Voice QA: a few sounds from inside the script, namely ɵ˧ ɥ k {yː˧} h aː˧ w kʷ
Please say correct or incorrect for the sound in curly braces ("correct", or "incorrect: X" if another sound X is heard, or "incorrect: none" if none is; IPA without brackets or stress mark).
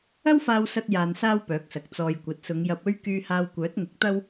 correct